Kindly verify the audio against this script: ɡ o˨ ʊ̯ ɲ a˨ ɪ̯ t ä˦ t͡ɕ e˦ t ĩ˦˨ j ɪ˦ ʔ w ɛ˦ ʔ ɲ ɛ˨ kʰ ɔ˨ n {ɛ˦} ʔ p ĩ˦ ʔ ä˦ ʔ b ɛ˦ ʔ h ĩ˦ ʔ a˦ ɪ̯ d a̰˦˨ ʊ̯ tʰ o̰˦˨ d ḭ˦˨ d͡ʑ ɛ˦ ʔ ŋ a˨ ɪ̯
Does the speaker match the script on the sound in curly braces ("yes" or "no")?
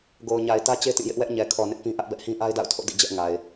no